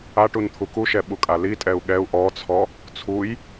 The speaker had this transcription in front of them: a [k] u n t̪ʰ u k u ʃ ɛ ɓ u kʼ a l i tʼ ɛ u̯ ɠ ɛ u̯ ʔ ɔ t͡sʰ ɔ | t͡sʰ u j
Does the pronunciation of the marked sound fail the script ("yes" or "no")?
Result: yes